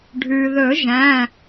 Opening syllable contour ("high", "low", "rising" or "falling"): low